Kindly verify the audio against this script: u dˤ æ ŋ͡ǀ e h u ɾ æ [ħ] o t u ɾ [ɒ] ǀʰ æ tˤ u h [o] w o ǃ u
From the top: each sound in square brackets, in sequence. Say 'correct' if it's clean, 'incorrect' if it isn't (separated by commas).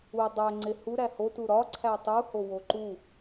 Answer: incorrect, correct, correct